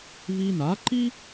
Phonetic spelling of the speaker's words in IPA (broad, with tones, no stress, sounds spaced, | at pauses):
v i˧ n a˩˥ ǃ i˥